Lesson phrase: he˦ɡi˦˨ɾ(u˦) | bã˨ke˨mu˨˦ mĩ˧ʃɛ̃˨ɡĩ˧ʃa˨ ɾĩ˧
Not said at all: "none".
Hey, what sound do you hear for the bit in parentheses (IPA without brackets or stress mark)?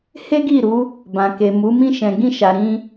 u˨˦